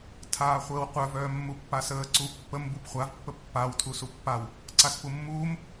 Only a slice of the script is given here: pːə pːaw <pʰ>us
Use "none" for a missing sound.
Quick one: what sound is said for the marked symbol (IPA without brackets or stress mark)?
tʰ